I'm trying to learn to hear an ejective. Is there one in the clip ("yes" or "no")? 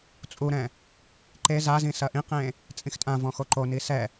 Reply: yes